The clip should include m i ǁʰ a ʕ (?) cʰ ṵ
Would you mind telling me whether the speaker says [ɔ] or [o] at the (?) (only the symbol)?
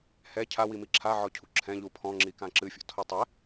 ɔ